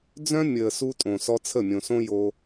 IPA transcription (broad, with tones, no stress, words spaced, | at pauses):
d͡zœ̃˦mʲəː˨ su˧tʼõ˨sɔ˧ t͡sʰə˦˨mʲõ˨sõ˦ jo˧